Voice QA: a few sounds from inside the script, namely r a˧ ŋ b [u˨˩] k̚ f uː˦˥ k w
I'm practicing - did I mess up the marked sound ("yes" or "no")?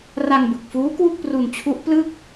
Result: yes